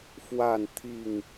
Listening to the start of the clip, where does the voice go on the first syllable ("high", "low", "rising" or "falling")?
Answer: falling